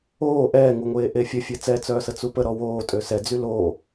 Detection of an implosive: absent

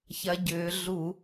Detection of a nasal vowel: absent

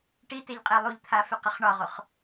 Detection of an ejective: present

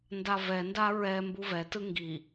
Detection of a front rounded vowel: absent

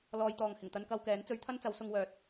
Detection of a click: absent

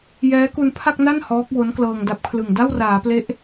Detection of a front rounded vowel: absent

